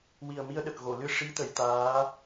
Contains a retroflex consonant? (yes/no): yes